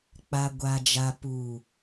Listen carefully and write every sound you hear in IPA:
k͡p a˨ ɡʷ a˨ d͡ʒ a˨ p uː˨

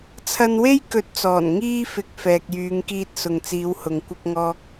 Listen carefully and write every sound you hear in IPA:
t͡sʰ ɐ˧ n w e˥ j k ɵ˨˥ t̚ t͡s ɔː˨˩ n ŋ iː˧ f ɪ˨ k̚ f ɛː˨ k̚ j yː˨˧ ŋ k iː˧ t̚ s ʊ˨ ŋ t͡s iː˨˧ w h ʊ˨ ŋ kʷ ɪ˥ k̚ ŋ ɔː˥ k̚

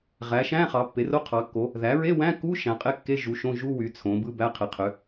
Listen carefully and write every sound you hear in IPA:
ʁ æ˩˥ ʃ æ̃˧˥˧ χ ɑ˩˥ pː e˩˥ r o˧˥˧ qʰ ɑ˩˥ kː o˩˥ | ð æ˩˥ ɹ e˧˥˧ w æ̃˧˥˧ k u˧˥˧ ʃ æ̃˩˥ qʼ e˧˥˧ kː e˧˥˧ ʒ u˩˥ ʃ õ˧˥˧ ʒ u˧˥˧ w y˩˥ t͡sʰ õ˩˥ b ɯ˧˥˧ b æ˧˥˧ qʰ e˩˥ qʰ ø˩˥

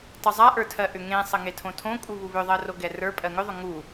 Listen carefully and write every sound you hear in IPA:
tˤ u zˤ a ʔ ə˞ tʰ ɜ ʔ ʏ ŋ ẽ sˤ ə ŋ e tʰ õ tʰ õ kʼ u β u β ʏ ðˤ ɜ r o ɡ ɛ r ə˞ pʼ ɜ ŋ ʏ ðˤ ʏ ŋ u

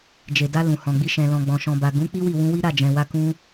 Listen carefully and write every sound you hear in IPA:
d͡ʒ e˨ d a˧ l ũ˨ h ɔ̃˨ ɡ͡b i˧ ʃ ɛ̃˨ l ɔ̃˨ ɡ͡b ɔ̃˨ ʃ ɔ̃˨ b a˨ ɡ ũ˨˦ k͡p i˦ w i˦˨ w ũ˧ w i˦ ɾ a˦˨ d͡ʒ ɛ̃˨ w a˧ k ũ˧

